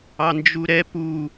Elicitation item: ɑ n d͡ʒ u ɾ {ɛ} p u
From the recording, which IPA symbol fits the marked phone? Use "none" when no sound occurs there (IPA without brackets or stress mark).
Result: ɛ